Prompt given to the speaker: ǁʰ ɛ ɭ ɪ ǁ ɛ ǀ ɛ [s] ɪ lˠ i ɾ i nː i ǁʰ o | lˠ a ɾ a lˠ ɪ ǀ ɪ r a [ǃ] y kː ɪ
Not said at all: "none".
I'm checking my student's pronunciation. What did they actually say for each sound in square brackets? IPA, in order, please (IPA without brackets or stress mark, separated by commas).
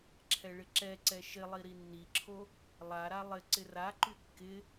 ʃ, ǃ